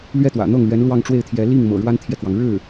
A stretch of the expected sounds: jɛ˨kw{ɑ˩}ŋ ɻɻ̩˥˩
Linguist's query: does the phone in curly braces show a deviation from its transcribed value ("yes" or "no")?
no